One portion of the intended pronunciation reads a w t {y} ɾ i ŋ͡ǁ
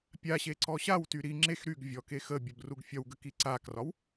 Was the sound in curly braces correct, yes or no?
yes